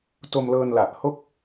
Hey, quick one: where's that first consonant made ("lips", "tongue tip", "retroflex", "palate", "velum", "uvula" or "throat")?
tongue tip